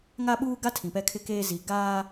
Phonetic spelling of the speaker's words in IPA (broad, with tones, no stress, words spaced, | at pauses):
ŋa˦ɓuː˦ɡa˦tʰĩ˨ pɛ˦kʰɪ˦keː˦ zi˨ ɡaː˦